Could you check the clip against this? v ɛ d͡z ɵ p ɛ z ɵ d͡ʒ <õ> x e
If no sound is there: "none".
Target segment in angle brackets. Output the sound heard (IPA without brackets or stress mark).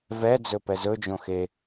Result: õ